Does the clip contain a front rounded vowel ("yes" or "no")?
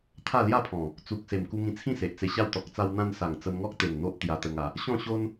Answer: no